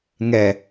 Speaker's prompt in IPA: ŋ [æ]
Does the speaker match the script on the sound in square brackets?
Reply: no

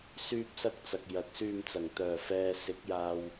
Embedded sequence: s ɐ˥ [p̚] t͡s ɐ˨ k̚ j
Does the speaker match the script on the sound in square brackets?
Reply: no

